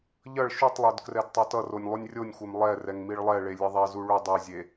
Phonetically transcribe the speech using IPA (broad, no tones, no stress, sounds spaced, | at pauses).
ʎ ʌ ɭ ʃ u tˤ lˠ o d k r ɛ d tˤ o t ʌ r o nʲ lˠ u nʲ rʲ o nʲ xʷ e m lˠ ɛ r ɛ ŋ m i ɭ lˠ ɛ ɭ e lʲ e ðˤ ɛ z u ɭ u dˤ e zʲ e